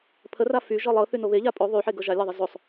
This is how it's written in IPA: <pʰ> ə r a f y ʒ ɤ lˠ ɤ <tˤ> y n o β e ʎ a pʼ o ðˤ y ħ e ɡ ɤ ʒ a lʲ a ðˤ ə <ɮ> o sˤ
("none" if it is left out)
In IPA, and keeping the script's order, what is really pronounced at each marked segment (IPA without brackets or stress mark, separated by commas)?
pʰ, θ, z